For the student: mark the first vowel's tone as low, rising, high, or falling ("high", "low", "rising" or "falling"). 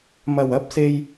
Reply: low